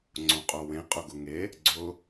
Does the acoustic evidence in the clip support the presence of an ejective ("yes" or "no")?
yes